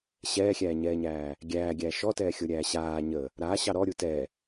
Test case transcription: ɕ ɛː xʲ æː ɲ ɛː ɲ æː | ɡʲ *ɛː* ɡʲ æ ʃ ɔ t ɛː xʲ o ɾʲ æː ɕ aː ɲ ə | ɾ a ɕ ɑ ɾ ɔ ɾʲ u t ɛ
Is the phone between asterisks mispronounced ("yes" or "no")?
yes